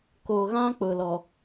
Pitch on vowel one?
low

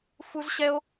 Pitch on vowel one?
high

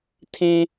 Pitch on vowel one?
high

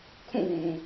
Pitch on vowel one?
falling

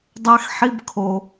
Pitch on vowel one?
high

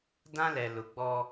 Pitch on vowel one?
high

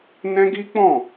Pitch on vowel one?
high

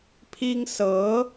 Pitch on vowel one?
high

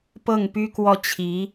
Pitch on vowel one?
falling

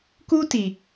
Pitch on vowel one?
high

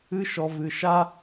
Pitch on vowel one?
high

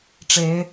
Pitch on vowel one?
rising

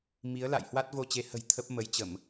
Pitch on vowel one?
rising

